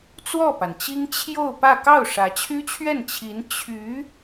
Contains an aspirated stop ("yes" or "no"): yes